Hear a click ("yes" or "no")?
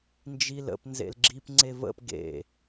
yes